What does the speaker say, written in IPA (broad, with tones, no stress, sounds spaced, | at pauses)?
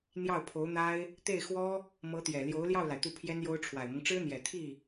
n̪ j ɑ˥˩ ʊ̯ pʰ o˧˥ ʊ̯ n̪ a˥ ɪ̯ | t̪ e˥˩ ɪ̯ x w ɔ˥ | m ɤ˧˥ t̪ j ɛ˨˩ l j o˧˥ ʊ̯ l j ɑ˥˩ ʊ̯ l a˩ ɪ̯ t̪ u˥˩ pʰ j ɛ˥ n j o˥ ʊ̯ ʈ͡ʂʰ w a˨˩ ɪ̯ m ɤ˦ ŋ ʈ͡ʂ ɻ̩˥ n̪ j ɛ˨˩ t̪ʰ i˥˩